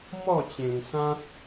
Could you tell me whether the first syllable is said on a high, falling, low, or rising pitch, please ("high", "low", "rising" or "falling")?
falling